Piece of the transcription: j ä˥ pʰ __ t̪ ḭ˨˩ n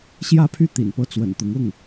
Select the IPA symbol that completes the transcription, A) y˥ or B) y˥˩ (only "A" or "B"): B